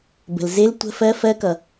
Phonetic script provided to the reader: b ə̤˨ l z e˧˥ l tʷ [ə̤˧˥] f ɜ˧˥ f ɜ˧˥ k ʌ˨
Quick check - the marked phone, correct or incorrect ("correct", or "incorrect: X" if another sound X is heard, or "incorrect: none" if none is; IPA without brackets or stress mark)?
correct